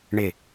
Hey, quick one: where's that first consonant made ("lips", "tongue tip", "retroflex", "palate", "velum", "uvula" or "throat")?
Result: retroflex